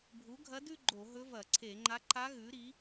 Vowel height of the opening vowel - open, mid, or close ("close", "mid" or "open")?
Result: close